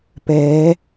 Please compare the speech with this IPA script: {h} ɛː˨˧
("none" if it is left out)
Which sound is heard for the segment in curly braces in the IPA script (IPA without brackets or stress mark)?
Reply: p